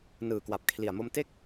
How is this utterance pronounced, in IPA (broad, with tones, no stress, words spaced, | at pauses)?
nɯː˨˩kwa˨˩p̚kʰli˨˩a̯mo˧m te˥˩k̚